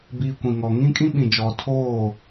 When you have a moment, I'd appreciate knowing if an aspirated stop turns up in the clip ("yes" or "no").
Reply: yes